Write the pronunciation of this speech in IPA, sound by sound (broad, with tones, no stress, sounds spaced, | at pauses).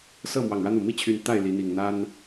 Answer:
s ɤ˥˨ m w ɑ˨˩ ŋ ɻ ä˦ n̪ u˨˩ m i˥˨ t͡ɕʰ y˨˦ n t̪ a˥˨ ɪ̯ l i˨˦ n̪ i˨˩ ŋ n̪ a˦ n